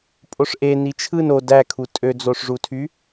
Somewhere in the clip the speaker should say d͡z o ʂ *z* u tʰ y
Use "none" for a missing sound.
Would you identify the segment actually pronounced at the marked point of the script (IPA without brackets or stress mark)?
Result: ʐ